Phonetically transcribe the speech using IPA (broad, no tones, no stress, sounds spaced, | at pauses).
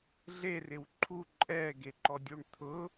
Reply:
ɮ e r ɪ w ǃʰ u ǃʼ ɛː ɡ e ǃ ɔ dʲ u ɳ t̪ʰ ʊ